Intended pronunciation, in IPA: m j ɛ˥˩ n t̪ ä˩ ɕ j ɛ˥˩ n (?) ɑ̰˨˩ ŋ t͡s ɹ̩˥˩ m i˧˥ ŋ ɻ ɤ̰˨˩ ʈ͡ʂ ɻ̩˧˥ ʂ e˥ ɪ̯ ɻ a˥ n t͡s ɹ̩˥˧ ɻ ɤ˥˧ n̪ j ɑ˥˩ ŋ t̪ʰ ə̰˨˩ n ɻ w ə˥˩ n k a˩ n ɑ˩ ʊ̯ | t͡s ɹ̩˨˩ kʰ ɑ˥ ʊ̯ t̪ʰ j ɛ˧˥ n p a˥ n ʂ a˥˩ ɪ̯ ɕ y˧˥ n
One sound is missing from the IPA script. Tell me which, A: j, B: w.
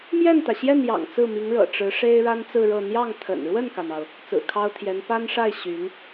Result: A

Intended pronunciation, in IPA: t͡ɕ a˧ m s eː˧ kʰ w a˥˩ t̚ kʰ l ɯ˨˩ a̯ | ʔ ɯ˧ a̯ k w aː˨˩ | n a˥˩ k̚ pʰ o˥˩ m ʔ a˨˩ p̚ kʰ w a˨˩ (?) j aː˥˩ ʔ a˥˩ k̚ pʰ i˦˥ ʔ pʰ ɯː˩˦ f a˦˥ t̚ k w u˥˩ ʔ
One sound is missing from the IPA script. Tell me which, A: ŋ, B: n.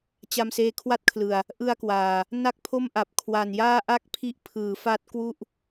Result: B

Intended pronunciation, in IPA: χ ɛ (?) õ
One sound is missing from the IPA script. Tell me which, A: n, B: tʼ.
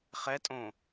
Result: B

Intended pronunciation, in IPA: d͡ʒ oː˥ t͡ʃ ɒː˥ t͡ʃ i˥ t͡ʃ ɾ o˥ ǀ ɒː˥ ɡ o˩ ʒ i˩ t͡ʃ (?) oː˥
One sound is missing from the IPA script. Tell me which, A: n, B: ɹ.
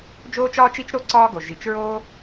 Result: B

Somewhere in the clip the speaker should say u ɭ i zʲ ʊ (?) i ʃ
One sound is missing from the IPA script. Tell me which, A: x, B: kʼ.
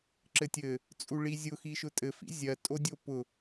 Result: A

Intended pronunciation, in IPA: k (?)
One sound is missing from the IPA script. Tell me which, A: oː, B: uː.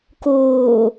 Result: A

